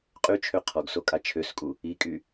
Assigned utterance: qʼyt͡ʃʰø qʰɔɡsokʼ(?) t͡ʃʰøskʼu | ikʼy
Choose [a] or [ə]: a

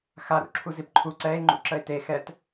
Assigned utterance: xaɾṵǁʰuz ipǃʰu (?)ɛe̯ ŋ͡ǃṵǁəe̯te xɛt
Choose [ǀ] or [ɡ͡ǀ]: ǀ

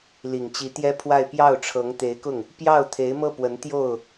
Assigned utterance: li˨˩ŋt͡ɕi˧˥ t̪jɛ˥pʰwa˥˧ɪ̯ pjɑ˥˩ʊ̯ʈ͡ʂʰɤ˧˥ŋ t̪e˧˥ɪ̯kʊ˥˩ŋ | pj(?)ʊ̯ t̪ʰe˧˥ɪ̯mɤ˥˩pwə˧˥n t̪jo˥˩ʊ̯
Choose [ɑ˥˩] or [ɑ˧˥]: ɑ˥˩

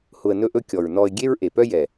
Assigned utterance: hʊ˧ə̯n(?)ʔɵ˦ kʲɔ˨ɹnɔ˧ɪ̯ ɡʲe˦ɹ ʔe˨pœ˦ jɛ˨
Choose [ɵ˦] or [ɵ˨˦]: ɵ˦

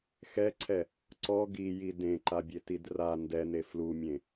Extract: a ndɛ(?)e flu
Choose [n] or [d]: n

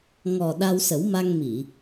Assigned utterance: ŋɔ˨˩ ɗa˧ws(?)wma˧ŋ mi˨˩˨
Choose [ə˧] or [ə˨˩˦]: ə˨˩˦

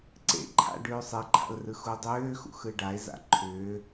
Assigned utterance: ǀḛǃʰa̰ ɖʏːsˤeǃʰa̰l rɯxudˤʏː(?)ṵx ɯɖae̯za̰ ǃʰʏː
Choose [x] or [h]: x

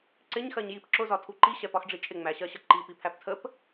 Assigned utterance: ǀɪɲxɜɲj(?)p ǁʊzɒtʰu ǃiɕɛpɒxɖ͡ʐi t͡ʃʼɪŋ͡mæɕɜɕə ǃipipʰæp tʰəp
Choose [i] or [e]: i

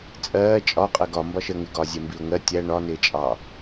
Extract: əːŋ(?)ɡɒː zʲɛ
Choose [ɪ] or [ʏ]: ɪ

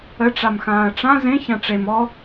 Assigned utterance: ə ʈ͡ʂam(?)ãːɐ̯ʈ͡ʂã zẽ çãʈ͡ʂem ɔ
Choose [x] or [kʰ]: x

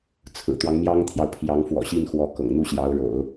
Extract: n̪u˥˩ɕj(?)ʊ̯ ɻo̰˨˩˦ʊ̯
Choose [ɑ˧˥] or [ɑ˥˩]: ɑ˧˥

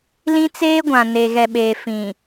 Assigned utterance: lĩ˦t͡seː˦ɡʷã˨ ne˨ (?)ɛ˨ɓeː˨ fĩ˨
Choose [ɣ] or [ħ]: ɣ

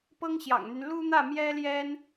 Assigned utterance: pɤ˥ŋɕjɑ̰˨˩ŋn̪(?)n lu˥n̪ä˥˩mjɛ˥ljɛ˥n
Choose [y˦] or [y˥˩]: y˦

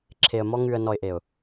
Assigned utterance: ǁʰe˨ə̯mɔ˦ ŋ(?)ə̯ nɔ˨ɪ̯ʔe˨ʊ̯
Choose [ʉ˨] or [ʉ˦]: ʉ˨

